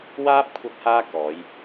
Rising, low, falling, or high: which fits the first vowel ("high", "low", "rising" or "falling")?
high